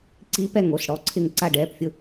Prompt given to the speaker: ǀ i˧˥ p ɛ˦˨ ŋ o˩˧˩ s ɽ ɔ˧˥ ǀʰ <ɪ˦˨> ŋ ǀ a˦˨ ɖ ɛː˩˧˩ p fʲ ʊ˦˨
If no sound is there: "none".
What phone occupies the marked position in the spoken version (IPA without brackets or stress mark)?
ɪ˦˨